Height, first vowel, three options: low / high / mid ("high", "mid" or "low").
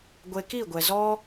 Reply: mid